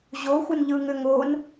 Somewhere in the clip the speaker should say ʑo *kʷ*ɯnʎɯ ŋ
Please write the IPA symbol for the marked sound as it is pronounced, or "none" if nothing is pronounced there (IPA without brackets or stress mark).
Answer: xʷ